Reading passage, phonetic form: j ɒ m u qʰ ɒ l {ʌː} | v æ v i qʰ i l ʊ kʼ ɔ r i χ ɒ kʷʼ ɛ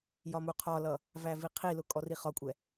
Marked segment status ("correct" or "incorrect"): incorrect